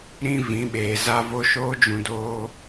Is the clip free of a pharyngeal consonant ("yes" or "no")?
yes